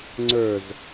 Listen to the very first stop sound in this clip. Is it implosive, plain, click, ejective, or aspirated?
click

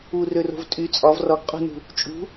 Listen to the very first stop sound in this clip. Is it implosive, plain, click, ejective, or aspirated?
ejective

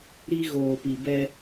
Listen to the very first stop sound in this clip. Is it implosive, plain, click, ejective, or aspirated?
plain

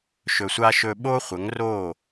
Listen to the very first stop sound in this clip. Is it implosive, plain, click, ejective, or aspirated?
implosive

